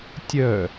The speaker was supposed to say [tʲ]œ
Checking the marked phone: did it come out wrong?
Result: no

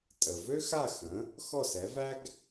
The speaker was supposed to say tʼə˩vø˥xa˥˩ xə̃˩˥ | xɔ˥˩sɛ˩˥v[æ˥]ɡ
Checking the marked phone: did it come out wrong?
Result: no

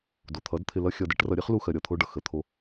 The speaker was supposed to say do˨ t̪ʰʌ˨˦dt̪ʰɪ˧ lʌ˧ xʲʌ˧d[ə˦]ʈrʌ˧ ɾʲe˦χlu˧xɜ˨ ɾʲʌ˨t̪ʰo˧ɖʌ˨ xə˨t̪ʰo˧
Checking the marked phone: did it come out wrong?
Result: yes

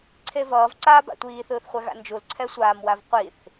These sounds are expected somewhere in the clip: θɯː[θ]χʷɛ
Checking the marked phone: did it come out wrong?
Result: no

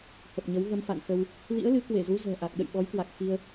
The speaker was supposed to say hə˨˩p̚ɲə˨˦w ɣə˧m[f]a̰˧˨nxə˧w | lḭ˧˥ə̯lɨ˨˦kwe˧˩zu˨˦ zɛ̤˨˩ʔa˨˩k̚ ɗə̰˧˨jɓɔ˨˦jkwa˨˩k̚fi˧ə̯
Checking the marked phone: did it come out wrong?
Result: no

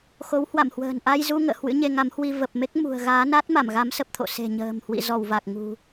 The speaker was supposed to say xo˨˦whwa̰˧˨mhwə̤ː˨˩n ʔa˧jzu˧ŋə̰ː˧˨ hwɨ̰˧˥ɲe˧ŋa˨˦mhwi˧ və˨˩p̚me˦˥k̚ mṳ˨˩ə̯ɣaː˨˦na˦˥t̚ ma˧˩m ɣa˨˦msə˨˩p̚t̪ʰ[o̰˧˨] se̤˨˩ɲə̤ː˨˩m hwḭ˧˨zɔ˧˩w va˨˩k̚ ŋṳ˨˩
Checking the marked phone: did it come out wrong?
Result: no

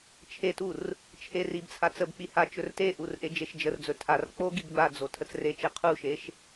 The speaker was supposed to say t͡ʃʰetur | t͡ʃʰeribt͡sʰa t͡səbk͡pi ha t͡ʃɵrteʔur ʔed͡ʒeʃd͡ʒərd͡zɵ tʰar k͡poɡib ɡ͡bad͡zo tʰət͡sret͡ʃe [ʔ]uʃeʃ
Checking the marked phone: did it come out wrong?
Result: yes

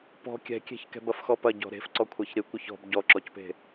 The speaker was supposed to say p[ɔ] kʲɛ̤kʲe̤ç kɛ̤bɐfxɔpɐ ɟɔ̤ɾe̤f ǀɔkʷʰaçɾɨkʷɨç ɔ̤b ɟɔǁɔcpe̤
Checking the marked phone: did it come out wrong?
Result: yes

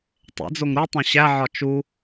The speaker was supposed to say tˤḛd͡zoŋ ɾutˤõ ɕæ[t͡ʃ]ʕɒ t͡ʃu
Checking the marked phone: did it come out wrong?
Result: yes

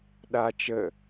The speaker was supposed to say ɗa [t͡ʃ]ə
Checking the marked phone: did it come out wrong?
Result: no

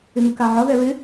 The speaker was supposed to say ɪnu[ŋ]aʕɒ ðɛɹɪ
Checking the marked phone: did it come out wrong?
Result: yes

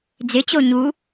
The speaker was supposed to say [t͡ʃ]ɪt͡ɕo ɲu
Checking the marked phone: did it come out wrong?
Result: yes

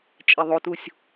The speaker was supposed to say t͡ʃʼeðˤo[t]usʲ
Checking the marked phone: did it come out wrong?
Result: no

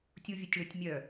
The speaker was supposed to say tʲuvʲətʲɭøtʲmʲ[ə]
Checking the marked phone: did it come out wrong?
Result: yes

